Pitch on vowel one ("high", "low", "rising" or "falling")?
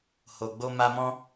low